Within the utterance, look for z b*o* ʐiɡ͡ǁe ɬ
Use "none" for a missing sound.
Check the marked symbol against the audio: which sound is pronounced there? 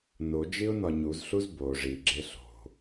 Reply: o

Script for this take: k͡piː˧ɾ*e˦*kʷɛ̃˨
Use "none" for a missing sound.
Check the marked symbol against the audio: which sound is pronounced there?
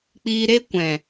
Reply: e˦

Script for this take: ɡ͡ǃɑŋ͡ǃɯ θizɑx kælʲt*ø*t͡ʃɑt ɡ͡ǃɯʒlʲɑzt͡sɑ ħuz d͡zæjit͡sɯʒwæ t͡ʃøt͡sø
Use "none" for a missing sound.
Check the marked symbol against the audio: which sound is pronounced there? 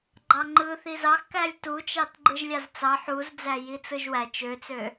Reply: u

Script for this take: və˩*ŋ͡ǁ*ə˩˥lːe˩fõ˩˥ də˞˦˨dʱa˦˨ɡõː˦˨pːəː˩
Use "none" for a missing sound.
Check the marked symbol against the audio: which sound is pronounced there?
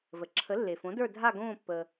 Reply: ǁʰ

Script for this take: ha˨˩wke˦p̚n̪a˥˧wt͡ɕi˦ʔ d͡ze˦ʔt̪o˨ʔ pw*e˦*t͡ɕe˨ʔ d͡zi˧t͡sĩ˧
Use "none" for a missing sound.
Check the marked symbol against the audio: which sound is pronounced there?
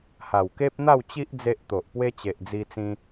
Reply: e˦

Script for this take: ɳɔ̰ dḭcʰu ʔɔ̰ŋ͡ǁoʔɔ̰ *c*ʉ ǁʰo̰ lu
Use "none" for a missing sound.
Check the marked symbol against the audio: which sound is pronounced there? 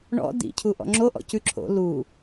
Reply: c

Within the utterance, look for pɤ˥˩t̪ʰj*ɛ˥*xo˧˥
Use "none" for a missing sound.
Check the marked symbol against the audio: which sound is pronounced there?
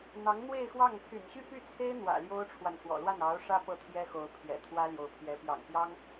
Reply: ɛ˥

